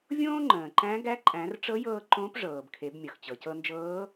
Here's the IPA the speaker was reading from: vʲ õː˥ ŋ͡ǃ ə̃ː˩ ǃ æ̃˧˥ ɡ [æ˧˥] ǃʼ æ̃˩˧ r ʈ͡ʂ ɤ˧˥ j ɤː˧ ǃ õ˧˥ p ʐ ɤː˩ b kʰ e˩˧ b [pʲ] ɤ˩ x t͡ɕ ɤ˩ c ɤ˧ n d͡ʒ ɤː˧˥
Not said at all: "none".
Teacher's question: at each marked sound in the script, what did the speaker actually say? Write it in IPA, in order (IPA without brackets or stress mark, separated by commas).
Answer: æ˧˥, mʲ